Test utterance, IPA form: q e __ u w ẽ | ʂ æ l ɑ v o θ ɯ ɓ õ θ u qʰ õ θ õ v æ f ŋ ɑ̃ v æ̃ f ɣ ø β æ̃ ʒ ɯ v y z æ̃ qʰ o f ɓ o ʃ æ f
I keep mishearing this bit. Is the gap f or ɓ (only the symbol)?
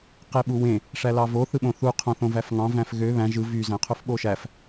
ɓ